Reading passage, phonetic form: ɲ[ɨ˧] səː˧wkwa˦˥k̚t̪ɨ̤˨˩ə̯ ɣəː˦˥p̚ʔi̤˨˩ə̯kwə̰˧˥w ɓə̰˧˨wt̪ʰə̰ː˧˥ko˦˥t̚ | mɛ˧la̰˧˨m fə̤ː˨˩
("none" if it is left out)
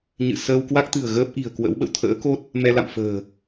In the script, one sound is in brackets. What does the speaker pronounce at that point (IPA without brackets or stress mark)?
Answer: ɨ̰˧˨